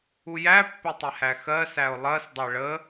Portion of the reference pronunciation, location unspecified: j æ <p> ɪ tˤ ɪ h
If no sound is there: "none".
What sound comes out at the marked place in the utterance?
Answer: pː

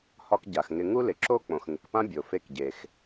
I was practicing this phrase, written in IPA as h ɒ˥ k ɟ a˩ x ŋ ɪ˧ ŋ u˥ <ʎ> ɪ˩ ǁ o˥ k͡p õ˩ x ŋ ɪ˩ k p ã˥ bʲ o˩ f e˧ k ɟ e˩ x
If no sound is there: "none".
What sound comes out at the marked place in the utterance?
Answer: l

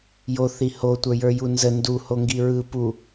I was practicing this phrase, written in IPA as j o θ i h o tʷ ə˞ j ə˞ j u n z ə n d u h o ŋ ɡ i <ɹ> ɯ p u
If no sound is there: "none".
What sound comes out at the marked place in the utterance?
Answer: ɹ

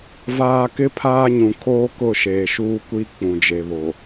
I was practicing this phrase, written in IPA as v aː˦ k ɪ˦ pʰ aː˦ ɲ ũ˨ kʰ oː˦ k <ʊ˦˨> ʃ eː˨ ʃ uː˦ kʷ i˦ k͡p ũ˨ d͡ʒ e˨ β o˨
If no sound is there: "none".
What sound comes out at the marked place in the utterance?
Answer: ʊ˦˨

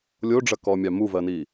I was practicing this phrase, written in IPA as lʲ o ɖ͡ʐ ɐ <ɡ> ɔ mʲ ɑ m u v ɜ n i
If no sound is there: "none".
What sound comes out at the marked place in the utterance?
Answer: k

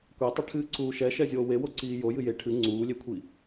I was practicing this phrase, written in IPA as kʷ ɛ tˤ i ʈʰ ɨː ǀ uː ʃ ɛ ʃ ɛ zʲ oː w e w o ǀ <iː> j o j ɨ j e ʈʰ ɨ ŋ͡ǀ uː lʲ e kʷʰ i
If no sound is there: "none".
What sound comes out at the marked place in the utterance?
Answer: iː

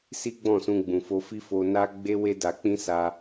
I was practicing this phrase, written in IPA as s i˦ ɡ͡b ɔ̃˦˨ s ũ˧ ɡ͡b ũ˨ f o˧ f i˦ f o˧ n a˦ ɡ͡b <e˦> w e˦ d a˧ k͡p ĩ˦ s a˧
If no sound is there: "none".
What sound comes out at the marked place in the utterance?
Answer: e˦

